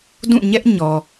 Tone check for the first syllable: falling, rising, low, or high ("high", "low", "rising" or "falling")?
falling